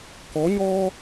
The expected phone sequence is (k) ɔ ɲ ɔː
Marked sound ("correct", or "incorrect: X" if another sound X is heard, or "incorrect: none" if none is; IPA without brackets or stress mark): correct